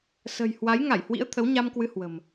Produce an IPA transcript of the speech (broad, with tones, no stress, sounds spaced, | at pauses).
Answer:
s ə̤˨˩ j h w a˨˦ j ŋ a˧˩ j h w ḭ˧˥ ə̯ t̪ʰ ə˨˦ w ɲ a˧ m k w ɨ˧ h w ə̤˨˩ m